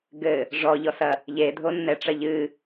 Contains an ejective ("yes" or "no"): no